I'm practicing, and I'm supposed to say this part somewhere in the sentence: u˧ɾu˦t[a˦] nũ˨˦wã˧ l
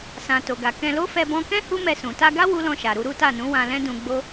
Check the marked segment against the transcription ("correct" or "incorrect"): incorrect